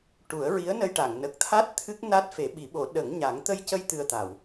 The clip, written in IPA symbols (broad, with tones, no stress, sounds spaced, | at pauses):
ʈ u˨˩˦ ə̯ ɹ i˧˥ ə̯ n ə˧ j ʈ a˨˩˨ ŋ n ə˨˩ k̚ t̪ʰ a˦˥ t̚ t̪ʰ ɨ˦˥ k̚ n a˦˥ t̚ f e˨˩˦ ɓ i˨˩˦ ɓ o˨˩˦ ɗ ə˨˩˦ ŋ ɲ a˨˩˦ ŋ t̪ ə˧ j c ə˧ j t̪ ɨ˨˩ ə̯ t̪ a˨˩˨ w